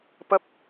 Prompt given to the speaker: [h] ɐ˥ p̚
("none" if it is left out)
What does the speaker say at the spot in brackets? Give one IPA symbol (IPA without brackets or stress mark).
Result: p